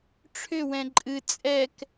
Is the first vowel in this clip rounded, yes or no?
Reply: yes